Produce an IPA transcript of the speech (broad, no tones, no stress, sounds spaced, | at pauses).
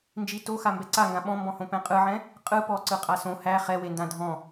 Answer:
n d͡ʒ i t o x a m b ɛ ǀ a ŋ ɡ ã ɓ ɔ̃ m b ɔ̃ h õ p ɛ̃ qʼ ɯ ʕ ɛ̃ | qʼ ɯ p ɔ ǀ ɯ qʼ a s õ h æ χ ɛ w e n d ã dʱ ɔ̃